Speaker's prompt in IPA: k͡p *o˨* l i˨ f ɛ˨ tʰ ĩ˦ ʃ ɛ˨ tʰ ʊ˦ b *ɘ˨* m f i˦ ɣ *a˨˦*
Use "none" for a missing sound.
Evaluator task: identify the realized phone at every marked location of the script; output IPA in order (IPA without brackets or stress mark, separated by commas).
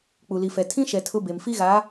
u˨, e˨, a˨˦